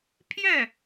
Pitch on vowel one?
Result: falling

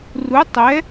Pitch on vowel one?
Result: rising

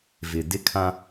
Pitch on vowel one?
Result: low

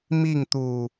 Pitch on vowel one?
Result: falling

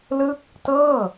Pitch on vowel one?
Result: falling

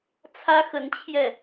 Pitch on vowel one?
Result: high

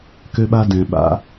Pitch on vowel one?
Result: high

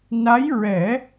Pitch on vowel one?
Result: rising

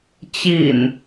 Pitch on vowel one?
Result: low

